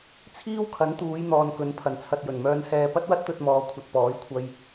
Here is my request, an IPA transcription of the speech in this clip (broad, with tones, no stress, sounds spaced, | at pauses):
t͡sʰ iː˥ w kʰ ɐ˨˥ n t̪ uː˨˧ j n̪ ɔː˨ n k ɵ˨˥ n pʰ ɐ˨˩ n t͡sʰ ɐ˨ t̚ j ɵ˨˩ n m œː˧ n h ɛː˧ p ɐ˥ t̚ w ɐ˥ t̚ t̪ ɵ˧ t̚ m ɔː˨ kʷʰ ɐ˨ t̚ p ɔː˨˥ j kʷʰ ɐ˧ j